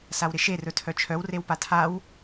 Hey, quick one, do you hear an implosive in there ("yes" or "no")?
no